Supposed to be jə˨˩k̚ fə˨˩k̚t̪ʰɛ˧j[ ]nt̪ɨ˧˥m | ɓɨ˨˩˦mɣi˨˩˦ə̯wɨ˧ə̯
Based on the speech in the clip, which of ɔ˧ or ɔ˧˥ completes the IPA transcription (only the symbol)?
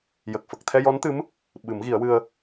ɔ˧˥